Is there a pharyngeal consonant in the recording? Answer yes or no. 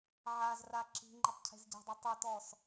yes